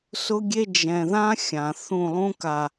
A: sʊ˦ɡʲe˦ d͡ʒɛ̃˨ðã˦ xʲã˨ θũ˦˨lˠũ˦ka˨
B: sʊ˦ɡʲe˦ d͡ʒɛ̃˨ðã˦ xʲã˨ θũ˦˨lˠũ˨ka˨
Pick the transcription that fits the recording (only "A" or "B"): A